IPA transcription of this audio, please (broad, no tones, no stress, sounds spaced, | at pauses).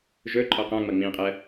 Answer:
ʒ ɵ ǃʼ ɔ q ã ŋ͡m ʌ ŋ͡m ĩ qʼ ɜ